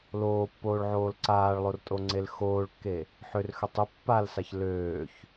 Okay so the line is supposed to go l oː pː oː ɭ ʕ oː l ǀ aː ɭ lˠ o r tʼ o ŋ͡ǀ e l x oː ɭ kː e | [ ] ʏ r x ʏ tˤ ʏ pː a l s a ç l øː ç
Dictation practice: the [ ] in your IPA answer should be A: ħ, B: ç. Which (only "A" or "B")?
A